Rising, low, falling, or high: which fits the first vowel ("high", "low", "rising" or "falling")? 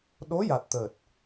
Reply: rising